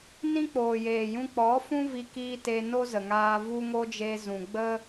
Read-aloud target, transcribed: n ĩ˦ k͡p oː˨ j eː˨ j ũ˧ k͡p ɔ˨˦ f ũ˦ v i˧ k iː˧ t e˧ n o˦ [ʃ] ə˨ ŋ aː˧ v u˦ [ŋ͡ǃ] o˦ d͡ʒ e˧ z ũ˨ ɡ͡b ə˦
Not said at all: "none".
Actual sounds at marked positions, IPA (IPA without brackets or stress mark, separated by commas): z, ŋ